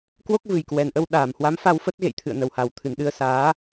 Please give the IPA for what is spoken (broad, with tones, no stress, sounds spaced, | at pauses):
k w o˦˥ k̚ v ɨ˨˩ j k w ɛ˨˩ n ʔ ə˧ w ɗ aː˧˩ m h w a˨˦ m f a˧ w f ə˦˥ t̚ ɣ ḛ˧˨ j t̪ʰ ɨ̰˧˨ ə̯ n ə˨˩ w h a˨˩ w t̪ʰ ɨ˨˩ n ɗ ɨ˧ ə̯ s aː˨˦